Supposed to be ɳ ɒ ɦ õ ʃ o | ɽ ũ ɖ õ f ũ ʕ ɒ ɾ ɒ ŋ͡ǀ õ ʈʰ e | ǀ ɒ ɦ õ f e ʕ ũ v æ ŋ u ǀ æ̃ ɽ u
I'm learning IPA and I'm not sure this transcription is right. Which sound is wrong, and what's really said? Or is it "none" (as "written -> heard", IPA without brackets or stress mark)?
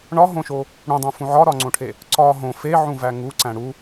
ɖ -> dˤ